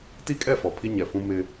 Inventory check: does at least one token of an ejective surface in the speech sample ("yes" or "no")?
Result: yes